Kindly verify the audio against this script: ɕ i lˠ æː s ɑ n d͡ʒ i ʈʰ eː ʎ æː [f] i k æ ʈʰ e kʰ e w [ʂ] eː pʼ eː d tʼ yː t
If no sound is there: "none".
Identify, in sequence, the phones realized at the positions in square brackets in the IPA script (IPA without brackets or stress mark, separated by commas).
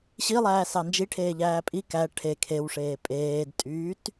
pʼ, ʂ